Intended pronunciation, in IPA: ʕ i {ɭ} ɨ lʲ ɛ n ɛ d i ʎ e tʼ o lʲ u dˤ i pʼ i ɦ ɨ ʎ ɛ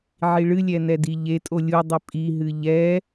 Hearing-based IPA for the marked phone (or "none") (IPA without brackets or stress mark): ɭ